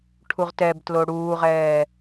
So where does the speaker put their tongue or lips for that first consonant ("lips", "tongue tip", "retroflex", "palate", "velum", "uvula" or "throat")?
retroflex